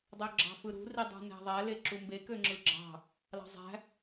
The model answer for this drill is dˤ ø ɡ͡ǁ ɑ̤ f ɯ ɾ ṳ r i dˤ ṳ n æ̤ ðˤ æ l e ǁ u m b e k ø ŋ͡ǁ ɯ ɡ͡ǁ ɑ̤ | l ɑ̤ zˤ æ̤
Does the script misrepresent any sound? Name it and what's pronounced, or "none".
none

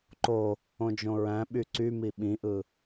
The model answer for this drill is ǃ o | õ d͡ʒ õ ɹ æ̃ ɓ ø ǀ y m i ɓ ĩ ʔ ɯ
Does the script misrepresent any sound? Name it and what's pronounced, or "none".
ø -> y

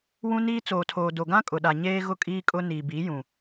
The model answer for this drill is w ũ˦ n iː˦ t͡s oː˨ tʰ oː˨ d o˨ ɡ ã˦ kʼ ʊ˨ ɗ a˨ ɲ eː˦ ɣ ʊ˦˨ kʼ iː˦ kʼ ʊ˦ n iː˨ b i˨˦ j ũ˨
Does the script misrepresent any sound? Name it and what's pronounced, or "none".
none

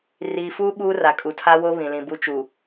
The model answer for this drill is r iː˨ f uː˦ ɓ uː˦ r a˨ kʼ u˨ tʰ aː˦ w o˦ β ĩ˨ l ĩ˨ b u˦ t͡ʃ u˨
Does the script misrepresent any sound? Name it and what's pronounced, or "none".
aː˦ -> a˦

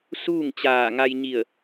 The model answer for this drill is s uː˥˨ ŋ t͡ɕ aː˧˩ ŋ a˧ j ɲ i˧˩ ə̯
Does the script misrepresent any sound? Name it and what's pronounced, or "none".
none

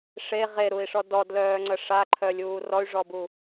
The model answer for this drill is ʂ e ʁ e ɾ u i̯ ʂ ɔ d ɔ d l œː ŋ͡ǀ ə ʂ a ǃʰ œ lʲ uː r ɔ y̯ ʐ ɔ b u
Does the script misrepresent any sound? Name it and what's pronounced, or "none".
none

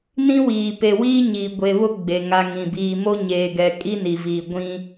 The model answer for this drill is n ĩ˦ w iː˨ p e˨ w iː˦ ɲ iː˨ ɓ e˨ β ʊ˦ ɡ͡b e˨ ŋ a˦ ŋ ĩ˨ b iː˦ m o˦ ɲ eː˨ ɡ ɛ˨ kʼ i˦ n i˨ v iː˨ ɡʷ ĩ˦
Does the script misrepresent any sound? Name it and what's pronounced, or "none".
ɓ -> ɡʷ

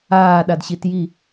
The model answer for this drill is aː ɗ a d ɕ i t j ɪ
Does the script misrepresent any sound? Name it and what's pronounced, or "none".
ɪ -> i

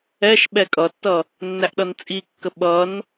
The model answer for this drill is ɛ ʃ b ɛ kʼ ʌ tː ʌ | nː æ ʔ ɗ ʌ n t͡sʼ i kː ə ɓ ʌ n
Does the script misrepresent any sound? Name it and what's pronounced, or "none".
b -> ɓ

